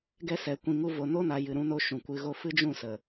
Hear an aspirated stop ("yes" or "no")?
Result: no